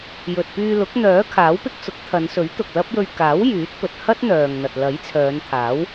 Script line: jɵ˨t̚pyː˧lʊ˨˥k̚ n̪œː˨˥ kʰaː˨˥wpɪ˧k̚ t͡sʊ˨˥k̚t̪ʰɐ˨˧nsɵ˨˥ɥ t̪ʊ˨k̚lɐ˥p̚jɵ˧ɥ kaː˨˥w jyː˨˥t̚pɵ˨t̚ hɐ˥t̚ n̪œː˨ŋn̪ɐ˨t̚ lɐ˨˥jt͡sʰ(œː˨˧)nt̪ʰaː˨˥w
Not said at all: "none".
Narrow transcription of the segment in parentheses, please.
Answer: œː˨˧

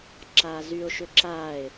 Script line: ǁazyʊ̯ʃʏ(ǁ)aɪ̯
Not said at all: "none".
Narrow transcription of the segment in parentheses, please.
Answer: ǁ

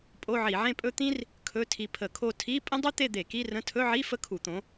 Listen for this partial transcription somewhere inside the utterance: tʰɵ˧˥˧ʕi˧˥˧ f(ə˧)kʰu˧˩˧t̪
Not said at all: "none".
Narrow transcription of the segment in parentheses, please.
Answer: ə˥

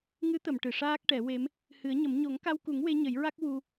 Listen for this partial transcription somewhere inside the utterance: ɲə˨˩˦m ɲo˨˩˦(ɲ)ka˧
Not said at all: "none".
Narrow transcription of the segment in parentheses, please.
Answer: ŋ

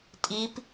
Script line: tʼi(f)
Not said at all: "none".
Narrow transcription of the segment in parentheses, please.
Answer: p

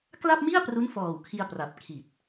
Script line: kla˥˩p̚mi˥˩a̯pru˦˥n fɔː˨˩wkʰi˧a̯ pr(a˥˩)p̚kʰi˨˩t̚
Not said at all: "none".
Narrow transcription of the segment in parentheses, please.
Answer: a˨˩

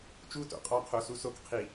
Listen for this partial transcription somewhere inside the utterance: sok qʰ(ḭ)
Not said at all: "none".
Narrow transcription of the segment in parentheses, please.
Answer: i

